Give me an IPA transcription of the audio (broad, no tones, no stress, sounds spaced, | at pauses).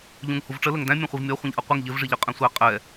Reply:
ʎ ũ ŋ h u v ʈ͡ʂ ə l ə ŋ d æ̃ mʲ ɛ̃ χʷ i v mʲ ɔ χʷ ĩ ʎ ʔ ʌ qʷ ɪ ŋ ʎ ɪ v ʐ i ʎ ə qʼ ɛ̃ sʷ æ qʼ ɛ